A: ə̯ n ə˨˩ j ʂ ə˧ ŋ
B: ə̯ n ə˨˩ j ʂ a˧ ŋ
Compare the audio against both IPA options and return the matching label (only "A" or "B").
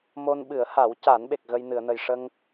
A